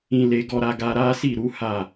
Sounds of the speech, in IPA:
ĩ˧le˧ ɡɔ˧ɾa˧ɡa˧ ɾa˦ si˦˨ ɾu˨˦ ha˦˨

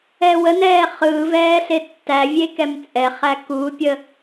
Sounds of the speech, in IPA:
ɛwənɛː χɯːvɛː ɬetːævʲe kɛmt͡sʼɛχæ kupʲə

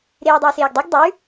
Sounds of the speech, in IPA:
ɾeːɐ̯dˤuːseːɡdˤʉɡ dˤʉ

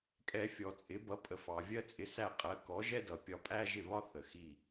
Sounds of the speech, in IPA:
kʼɛ˧ fʲɔ˩t͡sʼɪ˩˥bʌ˩˥ pʼə˩fɑ˩ vʲɜ˥t͡sʼɪ˧sæ˥˩qʼɜ˩˥ kɔ˩˥ʒɛ˥dʌ˩ pʲɒ˧pʼæ˥ʒɪ˥˩βɒ˥ θə˩xi˥˩

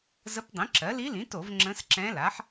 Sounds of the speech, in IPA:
zə˧˥pdˤĩ˩˥ǁɜ˩˥ li˧˥lĩ˩˥to˧˩˧v ŋ͡ǁə̃˧˥sǁɛ̃˧˥la˩˥ħ

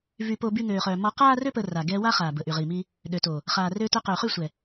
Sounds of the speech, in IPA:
vy˧po˧ by˦ŋøː˧χœ˧ mɔ˧qaː˦rø˦ pə˧ra˨ ɡɛ˧ wa˦χaː˨ bə˨ʔy˨ʁiː˨mi˧ | ɗø˨to˨ | χaː˨røː˧tœ˧ qøː˨χy˦˨sʷɛ˨

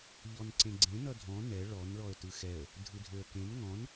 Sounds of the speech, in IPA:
ʎɔnǀẽɡ͡ǀẽ nʌdʱɔ̃ nɛ ɭɔn ɭɔə̯tɯxɛə̯ | dʱɯdʱøə̯kẽn ŋɔ̃n

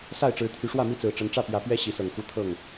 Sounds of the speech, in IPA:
sa˥˨ɪ̯ʈ͡ʂɻ̩˨˦t̪ʰy˨˦ ʂwä˥˨mi˥˨t͡sɹ̩˨˩ ʈ͡ʂə˨˦nʈ͡ʂä˥˨pjä˨˦pɥɛ˦ ɕi˨˦sɤ˨˩ŋxu˦ t̪ʰɤ˥˨ŋ

